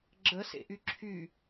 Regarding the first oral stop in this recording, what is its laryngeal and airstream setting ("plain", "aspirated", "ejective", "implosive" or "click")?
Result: click